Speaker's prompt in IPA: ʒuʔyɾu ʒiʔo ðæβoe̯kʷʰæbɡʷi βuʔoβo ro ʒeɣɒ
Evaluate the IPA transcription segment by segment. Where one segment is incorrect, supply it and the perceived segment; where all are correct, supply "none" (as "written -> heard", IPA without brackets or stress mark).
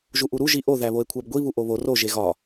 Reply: y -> u